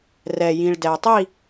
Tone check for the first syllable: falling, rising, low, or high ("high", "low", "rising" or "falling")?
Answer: low